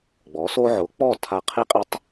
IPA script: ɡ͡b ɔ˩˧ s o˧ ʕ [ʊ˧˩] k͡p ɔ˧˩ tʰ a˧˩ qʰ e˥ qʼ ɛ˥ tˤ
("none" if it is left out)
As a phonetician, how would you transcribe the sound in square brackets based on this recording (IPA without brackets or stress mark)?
ʊ˩˧